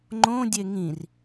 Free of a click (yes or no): no